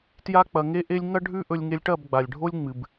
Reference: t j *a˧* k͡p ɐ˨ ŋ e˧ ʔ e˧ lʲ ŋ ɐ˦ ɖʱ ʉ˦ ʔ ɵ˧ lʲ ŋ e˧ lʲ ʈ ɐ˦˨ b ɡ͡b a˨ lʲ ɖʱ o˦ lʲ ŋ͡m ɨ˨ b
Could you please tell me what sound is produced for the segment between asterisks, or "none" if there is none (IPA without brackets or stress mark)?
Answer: a˧